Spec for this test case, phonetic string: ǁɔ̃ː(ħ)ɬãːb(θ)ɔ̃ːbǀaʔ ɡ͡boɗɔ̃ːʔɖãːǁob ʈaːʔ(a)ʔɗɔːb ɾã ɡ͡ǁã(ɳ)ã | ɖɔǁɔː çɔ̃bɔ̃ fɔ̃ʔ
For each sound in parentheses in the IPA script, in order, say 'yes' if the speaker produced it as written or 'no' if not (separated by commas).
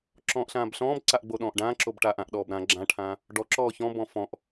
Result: no, no, no, no